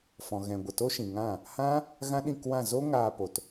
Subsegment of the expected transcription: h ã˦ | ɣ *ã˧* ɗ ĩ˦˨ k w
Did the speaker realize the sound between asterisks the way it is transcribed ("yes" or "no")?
no